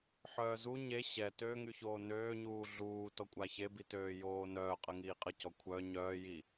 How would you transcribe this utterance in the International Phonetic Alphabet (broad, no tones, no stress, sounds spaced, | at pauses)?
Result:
ħ œː z u ɲ e ɕ ɛ t ø ŋ y ç oː n øː ɲ uː ɮ uː t ɔ kʷʼ a ç e b i t øː j oː n œː qʼ ə ŋ iː qʼ ə c ɔ kʷʰ œ ɲ œː j i